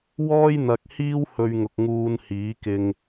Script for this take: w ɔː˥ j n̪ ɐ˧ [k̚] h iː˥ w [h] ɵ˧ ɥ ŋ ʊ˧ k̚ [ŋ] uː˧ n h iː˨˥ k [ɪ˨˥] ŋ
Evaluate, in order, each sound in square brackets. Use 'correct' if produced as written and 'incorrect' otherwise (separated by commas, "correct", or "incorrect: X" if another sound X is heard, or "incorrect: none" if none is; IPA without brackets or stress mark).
correct, correct, correct, incorrect: ɪ˧